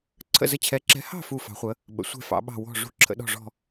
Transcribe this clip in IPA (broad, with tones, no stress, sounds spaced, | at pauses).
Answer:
ǀʰ ə̰˦˨ z ə˦˨ t͡ɕʰ ɛ˨˦ ǁ ɛ̤˨˦ h ɑ̤˦˨ f u˦˨ f ɑ̤˨˦ χʷ ə˨˦ | ɓ ə̰˨˦ sʷ ɛ̤˦˨ f ɑ̰˨˦ ɓ ɑ̤˦˨ w ɔ̤˦˨ ʐ ṳ˦˨ ǁʰ ə̰˨˦ ɗ ɔ̤˦˨ ʐ ɔ̤˦˨